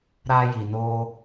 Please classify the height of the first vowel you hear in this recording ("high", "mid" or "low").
low